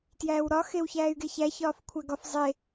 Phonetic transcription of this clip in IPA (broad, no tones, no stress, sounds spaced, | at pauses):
t j æː w ɾ ɒ x e w ç æː y̯ ɡ e ç æ ç ɒː f kʷʰ æ ɡ ɒ f zˤ e